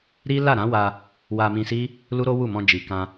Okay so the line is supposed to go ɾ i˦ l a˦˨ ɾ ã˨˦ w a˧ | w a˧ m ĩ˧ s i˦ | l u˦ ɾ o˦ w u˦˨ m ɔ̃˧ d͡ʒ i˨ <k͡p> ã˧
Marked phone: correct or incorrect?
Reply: incorrect